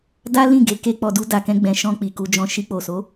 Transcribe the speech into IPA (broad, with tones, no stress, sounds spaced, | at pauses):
d a˦ l ĩ˦˨ ɡ e˨˦ k e˧ k͡p ɔ˨ d u˧ d a˨ k ɛ̃˧ ɡ͡b ɛ̃˨ ʃ ɔ̃˧ k͡p i˨ k u˧ d͡ʒ ɔ̃˧ ʃ i˧ k͡p o˨ s o˨˦